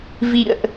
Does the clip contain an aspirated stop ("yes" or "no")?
no